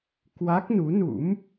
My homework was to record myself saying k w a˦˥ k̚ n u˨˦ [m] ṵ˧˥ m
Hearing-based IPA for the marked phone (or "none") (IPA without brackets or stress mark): n